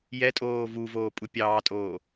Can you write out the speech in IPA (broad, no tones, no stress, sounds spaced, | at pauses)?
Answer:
j ɛ tʼ oː v u v oː pʼ u pʲ ɑː tʼ oː